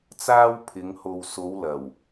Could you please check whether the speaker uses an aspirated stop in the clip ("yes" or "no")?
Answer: yes